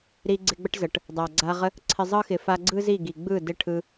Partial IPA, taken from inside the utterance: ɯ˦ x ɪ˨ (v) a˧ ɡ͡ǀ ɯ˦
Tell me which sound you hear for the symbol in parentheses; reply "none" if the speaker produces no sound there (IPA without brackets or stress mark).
f